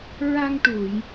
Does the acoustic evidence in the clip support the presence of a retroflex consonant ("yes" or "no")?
yes